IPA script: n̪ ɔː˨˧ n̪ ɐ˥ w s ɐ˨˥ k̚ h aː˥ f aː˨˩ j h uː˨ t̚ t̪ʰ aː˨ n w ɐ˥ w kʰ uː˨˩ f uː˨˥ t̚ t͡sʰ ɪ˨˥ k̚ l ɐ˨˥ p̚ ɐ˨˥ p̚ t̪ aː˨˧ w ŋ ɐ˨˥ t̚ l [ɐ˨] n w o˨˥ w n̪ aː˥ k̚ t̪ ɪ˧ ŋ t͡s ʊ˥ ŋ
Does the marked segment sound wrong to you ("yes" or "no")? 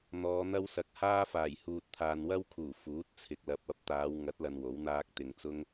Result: no